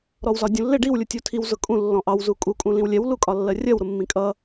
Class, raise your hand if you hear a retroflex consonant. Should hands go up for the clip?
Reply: yes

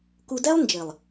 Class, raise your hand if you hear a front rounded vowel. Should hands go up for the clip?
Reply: no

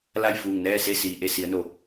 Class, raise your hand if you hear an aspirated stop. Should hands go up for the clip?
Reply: no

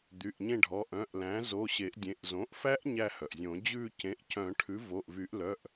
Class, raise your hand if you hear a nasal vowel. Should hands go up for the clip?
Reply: yes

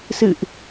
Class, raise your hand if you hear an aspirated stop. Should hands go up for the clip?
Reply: no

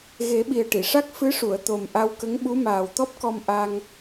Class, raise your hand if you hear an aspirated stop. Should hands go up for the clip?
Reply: no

